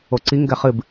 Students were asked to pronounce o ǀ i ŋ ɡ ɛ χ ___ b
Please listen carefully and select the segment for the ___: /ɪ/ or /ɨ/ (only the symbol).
ɨ